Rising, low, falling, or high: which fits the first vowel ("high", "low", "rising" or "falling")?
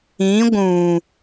rising